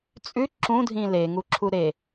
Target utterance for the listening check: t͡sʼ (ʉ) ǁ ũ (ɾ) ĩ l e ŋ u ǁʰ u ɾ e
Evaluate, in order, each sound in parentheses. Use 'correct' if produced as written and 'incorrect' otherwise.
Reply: correct, incorrect

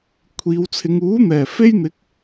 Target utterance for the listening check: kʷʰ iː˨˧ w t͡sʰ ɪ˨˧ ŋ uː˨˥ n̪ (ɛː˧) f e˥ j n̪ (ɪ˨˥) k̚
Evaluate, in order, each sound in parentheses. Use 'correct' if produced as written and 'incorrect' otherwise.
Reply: incorrect, correct

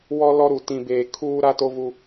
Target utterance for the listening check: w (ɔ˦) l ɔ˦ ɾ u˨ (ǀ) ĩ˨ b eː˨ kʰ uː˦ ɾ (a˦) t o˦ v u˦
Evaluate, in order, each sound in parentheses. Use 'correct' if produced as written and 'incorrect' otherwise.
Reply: correct, incorrect, correct

